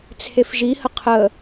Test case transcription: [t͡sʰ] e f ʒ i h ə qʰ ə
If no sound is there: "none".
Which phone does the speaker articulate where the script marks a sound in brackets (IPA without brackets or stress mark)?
t͡sʰ